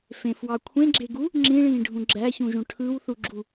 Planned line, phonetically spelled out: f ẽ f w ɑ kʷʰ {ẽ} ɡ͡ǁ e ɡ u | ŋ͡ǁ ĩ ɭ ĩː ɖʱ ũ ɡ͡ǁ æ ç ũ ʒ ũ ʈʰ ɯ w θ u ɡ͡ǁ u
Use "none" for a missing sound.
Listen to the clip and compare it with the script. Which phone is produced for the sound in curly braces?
ẽ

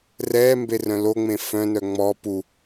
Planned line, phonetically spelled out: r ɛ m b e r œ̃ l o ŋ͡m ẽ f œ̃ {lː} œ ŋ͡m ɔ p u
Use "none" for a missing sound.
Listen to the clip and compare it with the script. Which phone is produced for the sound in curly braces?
n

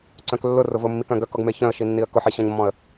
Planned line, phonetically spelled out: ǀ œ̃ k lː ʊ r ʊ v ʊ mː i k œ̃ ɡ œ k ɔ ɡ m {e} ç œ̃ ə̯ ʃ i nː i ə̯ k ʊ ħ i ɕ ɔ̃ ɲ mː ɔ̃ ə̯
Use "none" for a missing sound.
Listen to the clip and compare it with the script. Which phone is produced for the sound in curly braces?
e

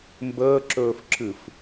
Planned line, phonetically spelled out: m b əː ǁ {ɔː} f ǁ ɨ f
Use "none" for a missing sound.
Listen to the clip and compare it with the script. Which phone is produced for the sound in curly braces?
ɵː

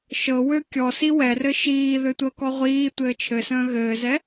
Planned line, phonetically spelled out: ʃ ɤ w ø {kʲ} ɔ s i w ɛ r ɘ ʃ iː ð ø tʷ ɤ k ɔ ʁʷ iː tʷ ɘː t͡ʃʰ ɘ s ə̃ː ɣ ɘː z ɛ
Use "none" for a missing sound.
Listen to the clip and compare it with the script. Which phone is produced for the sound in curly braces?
kʲ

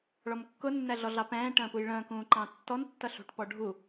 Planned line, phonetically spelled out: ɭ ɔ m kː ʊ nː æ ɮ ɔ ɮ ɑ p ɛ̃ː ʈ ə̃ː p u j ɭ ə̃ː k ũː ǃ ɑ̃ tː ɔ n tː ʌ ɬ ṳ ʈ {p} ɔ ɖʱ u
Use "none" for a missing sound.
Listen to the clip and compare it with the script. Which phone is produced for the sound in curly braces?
p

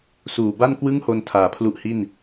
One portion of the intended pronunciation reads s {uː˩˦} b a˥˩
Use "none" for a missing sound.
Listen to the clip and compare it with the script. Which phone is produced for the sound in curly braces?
uː˨˩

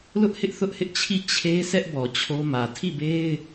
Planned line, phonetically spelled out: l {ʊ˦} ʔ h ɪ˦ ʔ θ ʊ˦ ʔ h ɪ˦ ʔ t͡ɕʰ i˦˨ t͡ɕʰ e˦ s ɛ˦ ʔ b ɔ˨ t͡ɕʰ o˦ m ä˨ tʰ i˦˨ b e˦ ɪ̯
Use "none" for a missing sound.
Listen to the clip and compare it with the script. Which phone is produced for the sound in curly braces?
ʊ˦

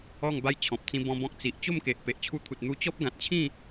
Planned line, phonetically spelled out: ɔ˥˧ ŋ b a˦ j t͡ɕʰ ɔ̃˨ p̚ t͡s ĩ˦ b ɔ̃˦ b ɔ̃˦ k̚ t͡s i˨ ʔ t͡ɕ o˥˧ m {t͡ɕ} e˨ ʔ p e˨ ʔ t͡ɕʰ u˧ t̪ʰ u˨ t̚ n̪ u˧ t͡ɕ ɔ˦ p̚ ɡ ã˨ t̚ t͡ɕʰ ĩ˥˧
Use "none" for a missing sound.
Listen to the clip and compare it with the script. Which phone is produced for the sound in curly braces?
k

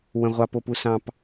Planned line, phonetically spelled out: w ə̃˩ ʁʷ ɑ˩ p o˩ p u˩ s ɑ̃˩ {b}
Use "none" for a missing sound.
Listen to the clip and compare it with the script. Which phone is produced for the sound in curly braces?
p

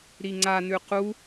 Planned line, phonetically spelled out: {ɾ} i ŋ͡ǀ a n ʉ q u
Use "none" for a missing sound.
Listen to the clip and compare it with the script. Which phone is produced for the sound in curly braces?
ɾ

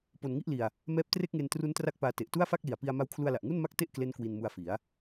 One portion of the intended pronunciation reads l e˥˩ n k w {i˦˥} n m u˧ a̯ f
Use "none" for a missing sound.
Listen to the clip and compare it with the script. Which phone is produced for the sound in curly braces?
i˧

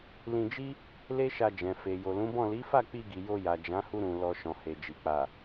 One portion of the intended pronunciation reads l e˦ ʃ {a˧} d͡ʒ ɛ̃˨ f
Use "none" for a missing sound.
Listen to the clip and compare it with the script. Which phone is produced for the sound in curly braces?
a˧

